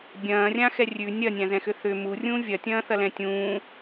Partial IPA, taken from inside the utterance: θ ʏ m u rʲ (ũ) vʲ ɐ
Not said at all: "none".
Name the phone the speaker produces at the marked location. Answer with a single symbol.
ũ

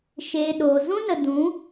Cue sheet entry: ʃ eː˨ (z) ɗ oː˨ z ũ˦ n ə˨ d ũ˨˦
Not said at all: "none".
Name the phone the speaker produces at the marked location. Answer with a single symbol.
none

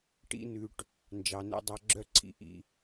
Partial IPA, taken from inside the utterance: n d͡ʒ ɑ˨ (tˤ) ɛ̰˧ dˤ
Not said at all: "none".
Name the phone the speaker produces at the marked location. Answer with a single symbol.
n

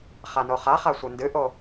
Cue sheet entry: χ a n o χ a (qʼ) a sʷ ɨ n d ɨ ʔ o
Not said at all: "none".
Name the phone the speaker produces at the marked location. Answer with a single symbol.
χ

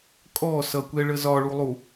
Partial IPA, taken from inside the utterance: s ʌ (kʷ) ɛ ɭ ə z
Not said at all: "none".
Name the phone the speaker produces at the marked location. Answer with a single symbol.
kʷ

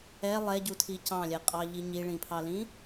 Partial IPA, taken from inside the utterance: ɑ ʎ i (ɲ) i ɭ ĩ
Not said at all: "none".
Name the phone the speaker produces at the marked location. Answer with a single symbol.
ɲ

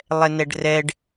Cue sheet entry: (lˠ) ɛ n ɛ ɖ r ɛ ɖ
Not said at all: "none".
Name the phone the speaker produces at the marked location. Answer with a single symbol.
lˠ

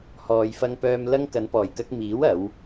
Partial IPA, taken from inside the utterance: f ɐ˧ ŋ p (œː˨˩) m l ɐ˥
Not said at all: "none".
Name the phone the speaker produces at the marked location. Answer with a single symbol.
œː˧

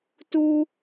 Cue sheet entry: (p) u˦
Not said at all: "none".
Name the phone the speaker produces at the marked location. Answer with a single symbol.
t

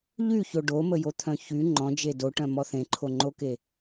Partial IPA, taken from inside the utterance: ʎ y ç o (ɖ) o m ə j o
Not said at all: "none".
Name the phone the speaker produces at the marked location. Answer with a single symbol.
ɖ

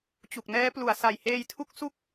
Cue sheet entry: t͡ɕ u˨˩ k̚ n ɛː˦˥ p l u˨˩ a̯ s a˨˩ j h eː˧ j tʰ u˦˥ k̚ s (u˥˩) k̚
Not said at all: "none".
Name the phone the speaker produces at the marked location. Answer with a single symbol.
u˥˩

